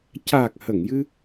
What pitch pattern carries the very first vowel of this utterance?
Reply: low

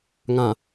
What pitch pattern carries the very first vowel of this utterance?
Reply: low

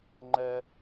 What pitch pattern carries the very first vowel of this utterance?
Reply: high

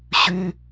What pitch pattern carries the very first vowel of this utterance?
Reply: high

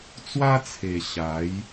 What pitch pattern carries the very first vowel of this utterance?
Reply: high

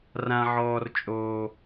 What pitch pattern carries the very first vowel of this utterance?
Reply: high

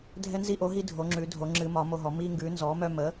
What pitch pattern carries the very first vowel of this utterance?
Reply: high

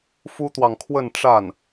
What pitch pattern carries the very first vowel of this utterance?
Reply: high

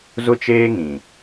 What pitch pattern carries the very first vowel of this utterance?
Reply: high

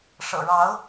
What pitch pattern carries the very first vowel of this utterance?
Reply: low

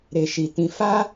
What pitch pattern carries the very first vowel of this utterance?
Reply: low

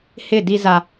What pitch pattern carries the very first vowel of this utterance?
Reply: falling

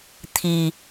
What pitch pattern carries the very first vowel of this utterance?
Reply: low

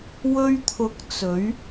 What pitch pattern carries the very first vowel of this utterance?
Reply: high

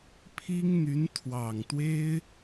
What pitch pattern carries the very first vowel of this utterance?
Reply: high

